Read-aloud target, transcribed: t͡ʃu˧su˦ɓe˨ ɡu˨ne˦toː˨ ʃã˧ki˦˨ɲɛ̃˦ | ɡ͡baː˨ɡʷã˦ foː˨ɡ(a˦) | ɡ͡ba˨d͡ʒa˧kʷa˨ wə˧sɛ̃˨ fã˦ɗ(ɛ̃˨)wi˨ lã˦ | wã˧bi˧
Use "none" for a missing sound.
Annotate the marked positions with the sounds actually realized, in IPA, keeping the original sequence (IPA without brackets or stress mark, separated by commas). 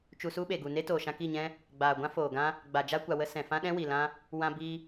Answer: ã˦, ɛ̃˦